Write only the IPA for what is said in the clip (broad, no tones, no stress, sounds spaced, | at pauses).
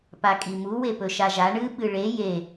p a kʼ i m u w e p ɵ ʃ a ʒ a ɳ ɨ ɓ ɨ ɭ e j e